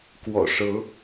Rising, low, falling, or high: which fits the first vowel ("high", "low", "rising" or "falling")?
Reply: low